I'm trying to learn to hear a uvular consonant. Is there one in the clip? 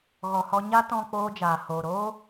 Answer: no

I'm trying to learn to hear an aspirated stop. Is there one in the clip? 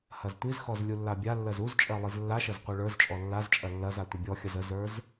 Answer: no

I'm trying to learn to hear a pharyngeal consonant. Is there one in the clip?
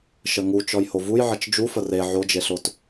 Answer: yes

